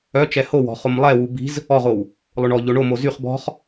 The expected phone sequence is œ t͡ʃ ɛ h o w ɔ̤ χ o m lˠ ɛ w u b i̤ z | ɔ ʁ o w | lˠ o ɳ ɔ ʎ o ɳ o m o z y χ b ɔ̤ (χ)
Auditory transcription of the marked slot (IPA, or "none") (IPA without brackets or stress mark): χ